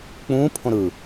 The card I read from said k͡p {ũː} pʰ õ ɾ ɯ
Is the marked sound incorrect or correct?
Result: correct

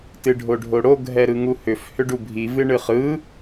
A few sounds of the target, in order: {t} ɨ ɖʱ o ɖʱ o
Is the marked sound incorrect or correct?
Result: correct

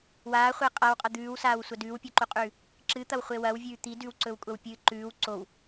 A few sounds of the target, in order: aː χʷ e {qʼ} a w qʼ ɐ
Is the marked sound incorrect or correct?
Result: correct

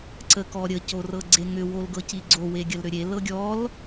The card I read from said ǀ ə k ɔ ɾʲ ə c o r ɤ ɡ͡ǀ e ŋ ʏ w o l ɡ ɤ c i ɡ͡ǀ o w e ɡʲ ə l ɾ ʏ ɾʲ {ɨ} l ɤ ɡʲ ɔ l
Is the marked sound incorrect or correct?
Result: incorrect: e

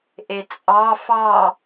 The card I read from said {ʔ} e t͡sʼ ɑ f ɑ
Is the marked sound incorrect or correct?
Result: correct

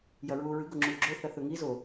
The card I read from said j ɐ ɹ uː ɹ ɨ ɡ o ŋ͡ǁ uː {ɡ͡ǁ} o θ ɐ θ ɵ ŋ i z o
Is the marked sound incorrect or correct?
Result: correct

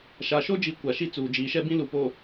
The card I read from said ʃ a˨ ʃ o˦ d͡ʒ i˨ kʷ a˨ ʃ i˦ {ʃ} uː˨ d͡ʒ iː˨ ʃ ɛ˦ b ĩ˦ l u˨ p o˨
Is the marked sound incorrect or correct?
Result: incorrect: t͡s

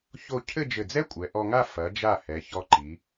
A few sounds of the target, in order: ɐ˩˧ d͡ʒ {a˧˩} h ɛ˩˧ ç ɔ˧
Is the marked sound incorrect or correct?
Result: correct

